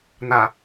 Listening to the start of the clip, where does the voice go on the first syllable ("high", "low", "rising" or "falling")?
low